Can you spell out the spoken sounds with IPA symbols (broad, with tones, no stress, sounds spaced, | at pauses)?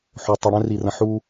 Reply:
ħ o˨ tˤ i˨ ɽ ɛ̃˦ r i˨ r ə̃˨ ħ u˦